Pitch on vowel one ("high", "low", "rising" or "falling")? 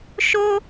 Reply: high